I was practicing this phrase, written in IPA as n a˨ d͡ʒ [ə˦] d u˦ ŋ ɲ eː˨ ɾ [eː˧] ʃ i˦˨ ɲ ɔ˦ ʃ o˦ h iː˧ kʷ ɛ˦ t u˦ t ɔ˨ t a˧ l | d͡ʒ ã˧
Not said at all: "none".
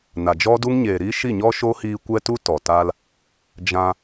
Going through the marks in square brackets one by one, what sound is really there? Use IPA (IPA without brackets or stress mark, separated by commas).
ɔ˦, iː˧